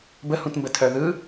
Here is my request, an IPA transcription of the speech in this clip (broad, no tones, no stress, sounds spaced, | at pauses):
b ə h ũ t m b ə tʰ œ ð ɯ